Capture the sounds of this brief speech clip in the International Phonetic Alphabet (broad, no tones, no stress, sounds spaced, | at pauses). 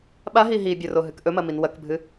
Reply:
ɓ a ɦ i ɦ i bʲ ɵ r o ɦ ɨ k ʔ ɵ m ɐ m i n w ɐ k bʱ ɨ